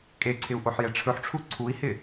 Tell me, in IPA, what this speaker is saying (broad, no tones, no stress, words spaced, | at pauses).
kʼeǀʰɪu̯ ʔoħjɛʈ͡ʂʰɵħʈ͡ʂʰu ǀʰui̯hɪ